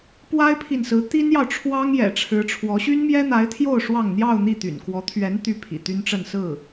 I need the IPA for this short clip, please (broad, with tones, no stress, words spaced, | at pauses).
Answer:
pwa˥ɪ̯pʰi˨nsɹ̩˧˥ t̪i˥njɑ˨ʊ̯ʈ͡ʂʰwɑ˥ŋjɛ̰˨˩ ʈ͡ʂʰɻ̩˧˥ʈ͡ʂʰwɔ˧˥ ɕy˥nmjɛ˥n̪a˧˥ɪ̯t̪ʰjo˥˧ʊ̯ ʂwɑ˥˧ŋ n̪jɑ˥˧ʊ̯n̪i˥˩ t̪y̰˨˩nkwɔ˧˥t̪ʰɥɛ˧˥n t̪y˥pʰḭ˨˩t̪y˥nʈ͡ʂə˥˧n sɹ̩˥˩